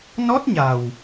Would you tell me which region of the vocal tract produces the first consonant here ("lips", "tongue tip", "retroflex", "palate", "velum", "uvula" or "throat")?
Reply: tongue tip